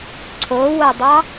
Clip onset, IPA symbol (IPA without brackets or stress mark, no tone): ǀʰ